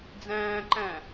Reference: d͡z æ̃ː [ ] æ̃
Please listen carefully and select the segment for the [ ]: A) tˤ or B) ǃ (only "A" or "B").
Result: B